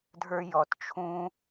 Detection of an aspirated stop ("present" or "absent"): present